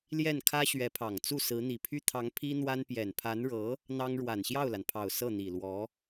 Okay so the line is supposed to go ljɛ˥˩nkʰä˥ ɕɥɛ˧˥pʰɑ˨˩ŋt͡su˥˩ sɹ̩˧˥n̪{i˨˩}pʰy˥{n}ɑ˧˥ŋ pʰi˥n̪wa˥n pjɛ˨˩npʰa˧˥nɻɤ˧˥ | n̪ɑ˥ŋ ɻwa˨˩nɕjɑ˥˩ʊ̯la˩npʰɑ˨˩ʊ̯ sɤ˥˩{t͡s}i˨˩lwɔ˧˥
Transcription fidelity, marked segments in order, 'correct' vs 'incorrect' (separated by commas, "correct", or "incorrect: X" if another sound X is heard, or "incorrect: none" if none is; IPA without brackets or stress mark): correct, incorrect: t̪ʰ, incorrect: n̪